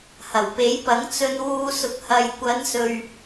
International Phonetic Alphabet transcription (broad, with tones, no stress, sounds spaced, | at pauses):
h ɐ˨˩ w p e˨˥ j p ɐ˨˥ ŋ t͡s ɵ˧ n w uː˧ s ʊ˨ k̚ h ɐ˨ j kʷ ɐ˨˧ n s ɵ˨ ɥ